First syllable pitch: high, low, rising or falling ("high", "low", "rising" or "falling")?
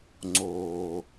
low